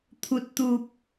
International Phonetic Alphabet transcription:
t̪ʰu˦t̚t̪u˦p̚

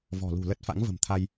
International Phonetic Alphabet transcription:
vɔ̤˨˩lṳ˨˩lə˦˥t̚ fa̰˧˥ŋvə̤˨˩mt̪ʰa˧j

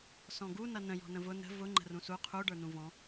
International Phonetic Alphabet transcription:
sɔ̃ɡu nʌnə̃ jɔ̤nə̃vʊ nə̤ vʊ ŋ͡ǃə̤rũsu qʰu ɖə˞nũvɔ̃

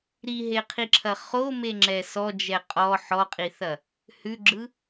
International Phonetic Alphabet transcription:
ɾiɦeqʰiǁʰɐ χomeŋ͡ǁɛ sɔd͡ʒɛ qʼɔ ħɔqʼiθɐ | hʉɡ͡ǁɯ

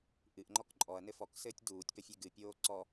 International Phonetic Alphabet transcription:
ʔɨʔŋ͡ǃɔk ǃʼɔɐ̯nɘ fɔksɘːtʲ duːtʲpəfʲe ɡɨpʲoː ǀɔ

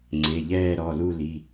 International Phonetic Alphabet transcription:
ŋ͡ǀe˩˧˩ʎɛː˥˧ɾɔ˩˧˩lu˥˧ li˩˧˩

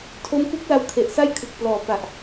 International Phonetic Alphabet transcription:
tʰo˦˥mku˦˥k̚la˧wkʰe˨˩ʔ sa˥˩jkʰɯ˨˩k̚plɔː˨˩pa˨˩ʔ

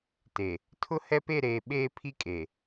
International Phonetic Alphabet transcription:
te˨ | tʰʊ˦hɛ˦pe˦˨ɾeː˨ ɓeː˦pʰi˦kʼe˨

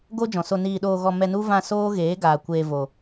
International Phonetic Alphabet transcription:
ɡo˦d͡ʒɔ̃˨so˧niː˧ ɗoː˧ɣɔ˧mɛ˧nu˦ vã˧ soː˦ɣeː˨˦ɡaː˨ kʷeː˧vo˨

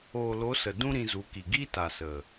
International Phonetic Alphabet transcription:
oː˨lo˨˦ sə˨dũ˦ ɾĩ˧zu˨˦ki˨ ɡi˦ ta˨sə˨

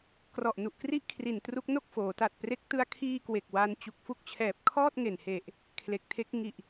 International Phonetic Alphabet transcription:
krɔ˨˩ʔnu˨˩ʔkri˦˥ʔ kʰri˨˩n tru˦˥k̚no˥˩k̚ foː˩˦ta˨˩t̚pre˦˥k̚ tɯ˧a̯kʰiː˧kwe˨˩k̚ wa˦˥n t͡ɕu˨˩k̚fu˦˥k̚t͡ɕʰɛː˨˩p̚ kʰɔː˥˩t̚ŋe˨˩nhe˨˩ʔ | kʰle˨˩k̚tʰe˦˥k̚ ŋi˨˩ʔ

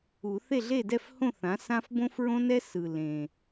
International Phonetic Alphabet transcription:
u˨˩˦θe˥˨ɮe˥˨dɛ˥˨f hõ˥˨θã˩˥ sã˦f bõ˦fɹõ˦nɛ˦ sɯ˨˩lẽ˨˩

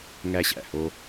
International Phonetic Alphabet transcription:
ŋæ˧ɕæ̰˧˩ho˧

